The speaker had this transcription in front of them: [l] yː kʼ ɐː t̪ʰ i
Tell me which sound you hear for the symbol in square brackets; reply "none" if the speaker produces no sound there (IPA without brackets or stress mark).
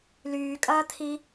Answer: l